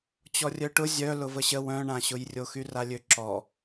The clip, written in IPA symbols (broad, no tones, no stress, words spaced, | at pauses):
t͡ɕɔrʲœʈʊ zʲœ lʊvəɕə wœ̃ɳãɕʊjrʲo xyralʲøǁɔ